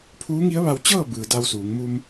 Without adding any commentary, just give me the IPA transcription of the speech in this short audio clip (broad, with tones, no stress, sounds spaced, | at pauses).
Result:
pʰ uː˧˥ ŋ i˧˥ ə̯ ʋ a˧ w t͡ɕ ɤː˥˨ b ɯː˩ d a˧ w s uː˩˧ ŋ m u˧ m